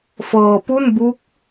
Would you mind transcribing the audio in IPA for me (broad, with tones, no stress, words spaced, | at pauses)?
fɤː˧pu˥˩nbu˦˥k̚